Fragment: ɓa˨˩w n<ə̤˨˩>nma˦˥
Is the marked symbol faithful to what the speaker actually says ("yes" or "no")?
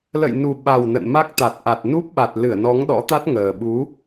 no